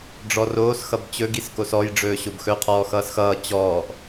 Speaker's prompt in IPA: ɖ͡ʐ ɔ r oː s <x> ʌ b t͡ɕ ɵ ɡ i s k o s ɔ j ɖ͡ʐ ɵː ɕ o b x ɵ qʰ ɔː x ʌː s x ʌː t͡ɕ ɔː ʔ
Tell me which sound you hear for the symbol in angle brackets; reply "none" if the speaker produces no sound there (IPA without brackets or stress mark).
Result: x